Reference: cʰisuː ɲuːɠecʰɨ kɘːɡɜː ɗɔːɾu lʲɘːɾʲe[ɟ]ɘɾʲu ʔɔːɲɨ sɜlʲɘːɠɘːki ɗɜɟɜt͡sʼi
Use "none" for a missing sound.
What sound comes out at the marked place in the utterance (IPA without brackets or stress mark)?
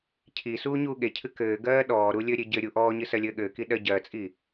ɟ